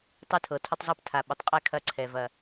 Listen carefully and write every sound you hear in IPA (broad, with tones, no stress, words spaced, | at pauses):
tˤɨ˨tʰɤ˩ tʰʊ˨tˤzˤɤ˨p tʰa˩ɓʊ˩tˤqʼɛ˨ kʰɐ˨ǀʰɛ˩ vɐ˨